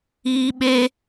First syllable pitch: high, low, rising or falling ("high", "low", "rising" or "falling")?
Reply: high